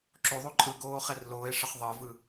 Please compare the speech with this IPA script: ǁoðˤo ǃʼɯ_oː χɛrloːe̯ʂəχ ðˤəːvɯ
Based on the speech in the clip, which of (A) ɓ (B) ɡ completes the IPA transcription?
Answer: B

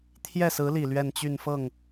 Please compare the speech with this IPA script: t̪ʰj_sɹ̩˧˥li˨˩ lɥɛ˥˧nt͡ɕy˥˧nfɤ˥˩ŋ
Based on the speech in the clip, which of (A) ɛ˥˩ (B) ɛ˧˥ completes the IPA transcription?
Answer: A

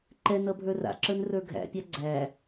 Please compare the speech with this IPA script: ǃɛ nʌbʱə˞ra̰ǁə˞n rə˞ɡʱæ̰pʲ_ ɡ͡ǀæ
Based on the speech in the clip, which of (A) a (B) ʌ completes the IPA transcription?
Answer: A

